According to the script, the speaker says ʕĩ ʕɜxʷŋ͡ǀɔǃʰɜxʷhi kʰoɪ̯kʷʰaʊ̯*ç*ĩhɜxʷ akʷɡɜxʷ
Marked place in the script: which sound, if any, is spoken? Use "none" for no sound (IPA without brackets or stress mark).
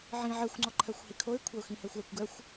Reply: x